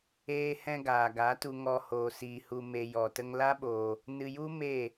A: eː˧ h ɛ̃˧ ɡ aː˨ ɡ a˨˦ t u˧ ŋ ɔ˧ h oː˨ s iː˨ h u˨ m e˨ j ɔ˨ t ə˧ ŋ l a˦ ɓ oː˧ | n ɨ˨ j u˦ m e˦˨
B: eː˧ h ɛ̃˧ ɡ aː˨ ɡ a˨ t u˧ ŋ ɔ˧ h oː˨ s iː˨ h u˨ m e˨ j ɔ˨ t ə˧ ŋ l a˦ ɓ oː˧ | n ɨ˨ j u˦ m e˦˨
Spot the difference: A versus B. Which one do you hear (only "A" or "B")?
A